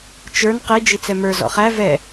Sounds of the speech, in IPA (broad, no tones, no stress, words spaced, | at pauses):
t͡ʃə˞n qi d͡ʒit͡sɛmə˞ zɔ̰χæ vɛ